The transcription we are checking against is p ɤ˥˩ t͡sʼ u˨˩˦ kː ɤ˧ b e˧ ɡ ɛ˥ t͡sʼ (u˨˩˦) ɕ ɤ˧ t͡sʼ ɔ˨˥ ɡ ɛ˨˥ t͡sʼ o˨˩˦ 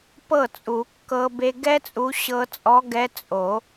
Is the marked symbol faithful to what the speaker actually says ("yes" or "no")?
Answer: no